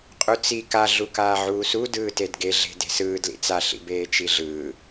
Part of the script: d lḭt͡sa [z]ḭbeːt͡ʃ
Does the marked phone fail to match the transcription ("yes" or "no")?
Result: yes